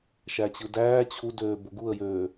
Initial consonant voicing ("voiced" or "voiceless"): voiceless